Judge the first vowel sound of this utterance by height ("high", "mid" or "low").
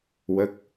mid